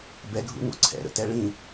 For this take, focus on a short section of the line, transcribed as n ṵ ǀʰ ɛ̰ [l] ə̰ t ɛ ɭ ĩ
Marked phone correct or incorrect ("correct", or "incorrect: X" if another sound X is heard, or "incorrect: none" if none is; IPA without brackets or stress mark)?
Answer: incorrect: ɾ